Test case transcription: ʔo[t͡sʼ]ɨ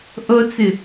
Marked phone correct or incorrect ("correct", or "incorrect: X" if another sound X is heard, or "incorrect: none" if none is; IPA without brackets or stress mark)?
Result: incorrect: t͡s